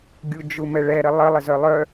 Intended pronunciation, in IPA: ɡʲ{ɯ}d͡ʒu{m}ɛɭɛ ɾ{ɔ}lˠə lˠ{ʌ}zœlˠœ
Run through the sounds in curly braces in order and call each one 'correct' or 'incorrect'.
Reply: incorrect: u, correct, incorrect: ə, incorrect: ə

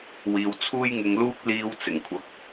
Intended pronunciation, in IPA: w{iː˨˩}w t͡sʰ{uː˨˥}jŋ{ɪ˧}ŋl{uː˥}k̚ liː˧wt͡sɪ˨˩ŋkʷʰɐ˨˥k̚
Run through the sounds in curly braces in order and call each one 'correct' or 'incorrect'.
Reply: incorrect: iː˧, incorrect: uː˥, correct, correct

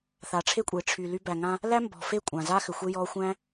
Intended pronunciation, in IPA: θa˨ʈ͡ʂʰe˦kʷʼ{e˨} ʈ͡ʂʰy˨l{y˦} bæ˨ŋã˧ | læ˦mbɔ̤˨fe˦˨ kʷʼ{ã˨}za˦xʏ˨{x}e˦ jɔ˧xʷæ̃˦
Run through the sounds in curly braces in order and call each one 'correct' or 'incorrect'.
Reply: correct, incorrect: y˧, correct, incorrect: xʷ

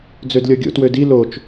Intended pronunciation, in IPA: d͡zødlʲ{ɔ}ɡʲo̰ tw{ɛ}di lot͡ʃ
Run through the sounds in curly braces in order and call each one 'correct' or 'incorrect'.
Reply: correct, incorrect: ø

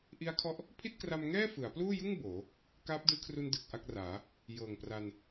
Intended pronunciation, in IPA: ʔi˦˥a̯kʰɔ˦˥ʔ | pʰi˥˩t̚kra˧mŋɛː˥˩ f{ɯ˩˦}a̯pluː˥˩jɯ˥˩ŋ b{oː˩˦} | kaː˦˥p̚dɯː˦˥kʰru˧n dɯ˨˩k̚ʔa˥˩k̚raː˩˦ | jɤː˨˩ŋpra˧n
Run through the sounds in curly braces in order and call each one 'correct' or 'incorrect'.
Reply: correct, correct

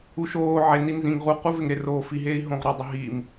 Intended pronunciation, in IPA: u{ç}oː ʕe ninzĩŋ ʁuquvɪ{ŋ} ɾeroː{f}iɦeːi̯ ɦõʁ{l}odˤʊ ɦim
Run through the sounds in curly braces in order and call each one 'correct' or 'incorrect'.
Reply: incorrect: ʃ, correct, correct, incorrect: ɾ

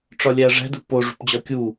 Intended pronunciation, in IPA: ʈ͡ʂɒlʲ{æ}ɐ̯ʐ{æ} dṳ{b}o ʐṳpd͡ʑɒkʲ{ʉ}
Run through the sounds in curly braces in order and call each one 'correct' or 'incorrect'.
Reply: correct, incorrect: æ̤, incorrect: p, incorrect: u

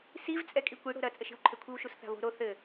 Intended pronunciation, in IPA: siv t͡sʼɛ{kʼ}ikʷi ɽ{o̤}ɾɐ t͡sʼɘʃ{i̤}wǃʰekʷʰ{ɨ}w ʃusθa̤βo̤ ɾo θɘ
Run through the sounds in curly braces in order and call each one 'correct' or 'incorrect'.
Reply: correct, correct, correct, correct

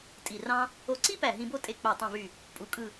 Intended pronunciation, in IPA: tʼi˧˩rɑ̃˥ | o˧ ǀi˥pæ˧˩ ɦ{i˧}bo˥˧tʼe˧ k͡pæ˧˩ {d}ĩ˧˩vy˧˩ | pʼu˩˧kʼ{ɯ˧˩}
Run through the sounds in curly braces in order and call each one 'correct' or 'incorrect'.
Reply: incorrect: ĩ˧, incorrect: tˤ, correct

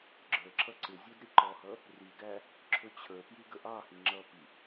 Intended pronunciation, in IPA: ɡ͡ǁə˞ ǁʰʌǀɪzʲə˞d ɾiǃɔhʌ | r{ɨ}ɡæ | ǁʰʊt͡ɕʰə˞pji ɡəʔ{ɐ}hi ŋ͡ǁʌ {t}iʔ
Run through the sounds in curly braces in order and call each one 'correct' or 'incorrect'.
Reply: incorrect: i, incorrect: ɑ, incorrect: p

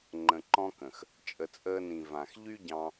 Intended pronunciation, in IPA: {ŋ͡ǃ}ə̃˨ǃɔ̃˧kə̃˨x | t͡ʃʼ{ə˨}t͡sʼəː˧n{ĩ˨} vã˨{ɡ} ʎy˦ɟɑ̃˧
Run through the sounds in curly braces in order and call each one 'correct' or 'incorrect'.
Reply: correct, correct, correct, incorrect: x

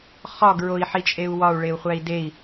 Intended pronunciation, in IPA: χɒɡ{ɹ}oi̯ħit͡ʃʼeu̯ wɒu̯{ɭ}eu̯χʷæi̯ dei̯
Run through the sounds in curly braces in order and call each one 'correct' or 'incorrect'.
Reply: correct, correct

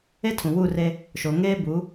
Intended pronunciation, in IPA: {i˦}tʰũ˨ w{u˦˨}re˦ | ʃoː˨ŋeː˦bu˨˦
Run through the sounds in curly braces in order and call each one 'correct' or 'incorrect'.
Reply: incorrect: e˦, correct

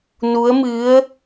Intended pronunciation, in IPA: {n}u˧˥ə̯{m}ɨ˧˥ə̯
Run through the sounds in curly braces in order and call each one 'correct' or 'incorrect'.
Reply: correct, correct

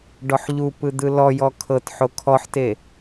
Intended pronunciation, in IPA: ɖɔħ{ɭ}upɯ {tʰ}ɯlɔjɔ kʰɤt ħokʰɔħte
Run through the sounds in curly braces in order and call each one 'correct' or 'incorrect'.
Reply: incorrect: ʎ, incorrect: d̪

